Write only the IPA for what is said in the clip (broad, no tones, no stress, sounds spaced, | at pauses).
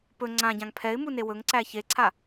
p ɵ ŋ͡ǀ ã ɟ ã ŋ pʰ ɛ ɪ̯ m u n e w ɵ ŋ ǀ æ ç e ǀʰ a